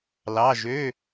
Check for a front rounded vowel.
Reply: present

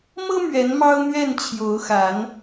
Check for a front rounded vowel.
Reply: absent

